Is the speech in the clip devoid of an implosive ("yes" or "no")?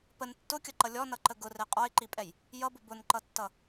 yes